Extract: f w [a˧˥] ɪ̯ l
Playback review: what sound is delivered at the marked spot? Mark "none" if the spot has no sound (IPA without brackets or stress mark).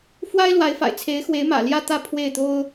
a˥